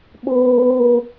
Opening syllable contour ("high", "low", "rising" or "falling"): low